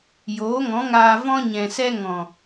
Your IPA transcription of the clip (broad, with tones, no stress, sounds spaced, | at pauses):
j oː˨˦ ŋ ɔ̃˨˦ ŋ aː˧ v ɔ̃˧ ɲ ɛ̃˨ s ɛ˧ ŋ ɔ̃˨